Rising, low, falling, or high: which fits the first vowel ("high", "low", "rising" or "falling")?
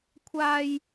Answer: high